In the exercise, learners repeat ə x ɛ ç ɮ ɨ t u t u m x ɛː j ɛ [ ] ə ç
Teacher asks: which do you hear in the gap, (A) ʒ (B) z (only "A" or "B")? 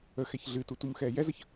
B